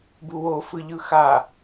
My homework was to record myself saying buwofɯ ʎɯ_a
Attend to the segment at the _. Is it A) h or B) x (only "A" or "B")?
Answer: B